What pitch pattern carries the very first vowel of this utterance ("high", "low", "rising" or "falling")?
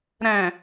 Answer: low